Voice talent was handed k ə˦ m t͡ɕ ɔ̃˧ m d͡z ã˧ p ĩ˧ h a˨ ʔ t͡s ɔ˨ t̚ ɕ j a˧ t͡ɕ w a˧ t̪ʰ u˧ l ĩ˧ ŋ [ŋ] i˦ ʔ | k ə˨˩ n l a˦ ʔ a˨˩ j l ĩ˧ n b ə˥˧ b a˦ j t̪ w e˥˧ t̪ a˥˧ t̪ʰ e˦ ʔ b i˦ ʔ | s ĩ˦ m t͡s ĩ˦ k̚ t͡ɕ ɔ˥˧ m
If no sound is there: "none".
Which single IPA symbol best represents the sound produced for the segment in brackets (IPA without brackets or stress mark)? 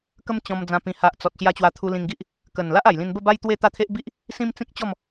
ɡ